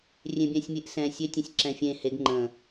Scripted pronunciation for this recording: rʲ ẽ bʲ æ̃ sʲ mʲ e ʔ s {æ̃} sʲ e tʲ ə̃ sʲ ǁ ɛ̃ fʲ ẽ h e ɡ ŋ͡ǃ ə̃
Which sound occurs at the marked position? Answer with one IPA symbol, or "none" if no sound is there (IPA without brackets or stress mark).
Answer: ɛ̃